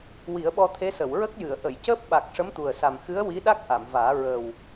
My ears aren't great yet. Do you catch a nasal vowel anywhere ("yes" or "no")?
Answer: no